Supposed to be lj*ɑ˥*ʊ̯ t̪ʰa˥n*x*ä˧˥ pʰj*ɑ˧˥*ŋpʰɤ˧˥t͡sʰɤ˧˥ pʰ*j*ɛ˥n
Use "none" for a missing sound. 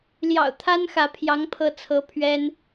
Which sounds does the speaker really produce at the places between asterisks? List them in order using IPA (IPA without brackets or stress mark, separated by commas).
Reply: ɑ̰˨˩, x, ɑ˧˥, ɥ